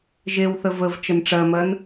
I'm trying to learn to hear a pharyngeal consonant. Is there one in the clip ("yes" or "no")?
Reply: no